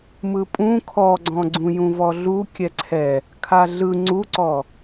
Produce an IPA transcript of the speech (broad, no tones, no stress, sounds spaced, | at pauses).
m ɯ pʼ ũ kʰ ɔ ɡ͡ǀ ɔ̃ ɡ͡ǀ ũ j ũ v ɔ ɮ u kʲ ɛ ǀʰ ɛ | kʰ a ɮ ɯ ŋ͡ǀ u ǀ ɔ